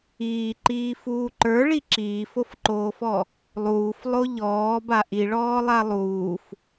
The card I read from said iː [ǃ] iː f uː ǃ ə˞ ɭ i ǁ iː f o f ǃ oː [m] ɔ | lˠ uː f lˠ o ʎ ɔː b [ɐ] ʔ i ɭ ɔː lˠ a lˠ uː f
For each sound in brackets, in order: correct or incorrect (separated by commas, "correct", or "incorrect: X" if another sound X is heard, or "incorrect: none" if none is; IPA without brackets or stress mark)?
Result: correct, incorrect: f, incorrect: a